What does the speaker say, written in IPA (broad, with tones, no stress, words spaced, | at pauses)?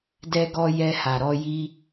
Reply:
dɛ˧ɡɔ˧ jɛ˧ha˨ɾɔ˧ ji˦